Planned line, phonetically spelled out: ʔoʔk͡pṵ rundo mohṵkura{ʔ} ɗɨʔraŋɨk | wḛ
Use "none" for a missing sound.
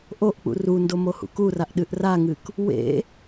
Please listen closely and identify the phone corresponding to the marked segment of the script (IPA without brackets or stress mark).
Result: ʔ